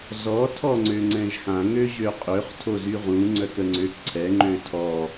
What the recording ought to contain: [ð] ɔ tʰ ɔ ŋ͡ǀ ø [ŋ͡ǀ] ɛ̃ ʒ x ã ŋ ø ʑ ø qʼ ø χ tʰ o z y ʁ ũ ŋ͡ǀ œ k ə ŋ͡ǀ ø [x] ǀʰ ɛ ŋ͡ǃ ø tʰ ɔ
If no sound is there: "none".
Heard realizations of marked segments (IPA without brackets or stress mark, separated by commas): z, ŋ͡ǀ, k